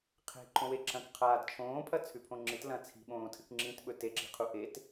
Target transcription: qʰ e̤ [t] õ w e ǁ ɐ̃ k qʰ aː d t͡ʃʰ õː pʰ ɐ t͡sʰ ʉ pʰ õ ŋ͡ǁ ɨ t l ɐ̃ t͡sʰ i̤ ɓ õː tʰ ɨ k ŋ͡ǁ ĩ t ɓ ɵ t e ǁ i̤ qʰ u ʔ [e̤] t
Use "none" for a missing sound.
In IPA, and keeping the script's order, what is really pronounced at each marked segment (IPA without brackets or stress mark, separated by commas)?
ǃ, e